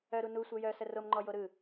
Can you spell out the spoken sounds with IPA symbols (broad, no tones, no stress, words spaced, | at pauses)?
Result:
œɾu nusʷœ jœsə romŋ͡ǃɔjo ɾɯ